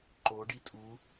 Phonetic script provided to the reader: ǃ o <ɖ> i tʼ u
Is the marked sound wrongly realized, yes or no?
no